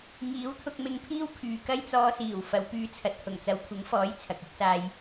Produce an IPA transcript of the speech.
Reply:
ŋ iː˨˥ w t̪ʰ ʊ˧ k̚ m ɪ˧ ŋ pʰ iː˥ w pʰ yː˨ k ɐ˥ j t͡s ɔː˧ s iː˨˩ w f ɐ˨˧ w p yː˧ t͡sʰ ɐ˨ t̚ h ʊ˨˩ ŋ t͡s ɐ˨ w kʷʰ ɪ˨˥ ŋ f ɔː˨˥ j t͡sʰ ɐ˨ k̚ ɪ˥ k̚ s aː˧ j

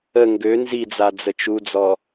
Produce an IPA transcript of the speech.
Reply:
ə ŋ ɡ ø n z i d͡z a d͡z ə t͡ʃ u d͡z ɔ

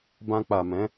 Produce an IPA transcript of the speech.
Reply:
b ã˧ k͡p a˨ m ɛ̃˨˦

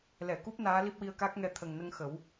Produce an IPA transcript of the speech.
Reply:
l ɛ˨˩˨ k u˦˥ p̚ n aː˧˥ l i˦˥ p̚ w i˧ ə̯ k a˦˥ k̚ ŋ ɛ˧ t̪ʰ ə˨˩ ŋ n ə˧ ŋ x ə˨˩˦ w

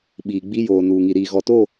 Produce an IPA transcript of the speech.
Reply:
ɓ iː˨ ɡ͡b i˦ j oː˨ n uː˨ ŋ i˨ ɾ iː˨ ɣ ɔ˨ t o˦˨

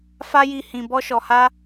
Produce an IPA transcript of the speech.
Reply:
f a˦ j i˦˨ h ĩ˧ b ɔ˦ ʃ ɔ˧ h a˦

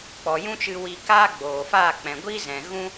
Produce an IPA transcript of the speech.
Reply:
k͡p ɔ˨ j ũ˦ t͡ʃ ɨ˧ w i˧ k aː˦ ɡ͡b oː˨ f aː˦˨ k͡p ɛ̃˨ ɡʷ i˦ z ɛ̃˨ ɣ ũ˦

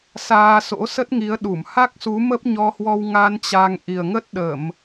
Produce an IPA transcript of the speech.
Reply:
s aː˧ s o̰˧˥ s ə˦˥ t̚ ŋ i˨˦ ə̯ ɗ u˧˩ m h a˦˥ k̚ s u˨˦ m ə˦˥ p̚ ɲ ɔ˧ h w ɔ˧ w ŋ a˧ n t͡ɕ a˧ ŋ ʔ i˨˩ ə̯ ŋ ə˦˥ t̚ ɗ ə˧˩˨ m

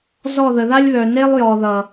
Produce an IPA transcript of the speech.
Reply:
z ɔ˦˨ ð ə˨ ð a˦ lʲ β œ˨ n e˦ lˠ j ɔ˨ ð ʌ˨

